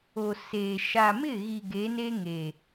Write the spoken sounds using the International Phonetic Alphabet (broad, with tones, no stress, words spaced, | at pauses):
o˨seː˨ ʃa˨ mɪ˦˨ɣi˨ ɡe˨˦ne˦ŋe˨